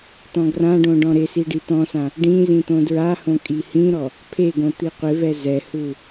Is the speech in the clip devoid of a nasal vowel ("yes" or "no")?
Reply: no